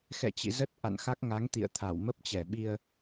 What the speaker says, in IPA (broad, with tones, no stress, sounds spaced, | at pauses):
x ɛ̰˧˨ t͡ɕ ḭ˧˨ z ə˦˥ t̚ ʔ a̰˧˨ n x a˦˥ k̚ ŋ a˨˦ ŋ t̪ ḭ˧˨ ə̯ t̪ʰ a˧˩ w m ə˦˥ p̚ t͡ɕ ɛ˧˩ ɓ i˧ ə̯